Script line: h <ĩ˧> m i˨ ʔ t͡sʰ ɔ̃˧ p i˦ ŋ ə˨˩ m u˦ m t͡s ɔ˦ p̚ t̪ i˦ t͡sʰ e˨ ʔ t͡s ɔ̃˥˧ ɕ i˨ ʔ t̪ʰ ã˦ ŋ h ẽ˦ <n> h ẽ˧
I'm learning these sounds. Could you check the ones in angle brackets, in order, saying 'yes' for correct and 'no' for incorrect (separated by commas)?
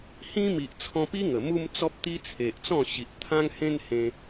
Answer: no, yes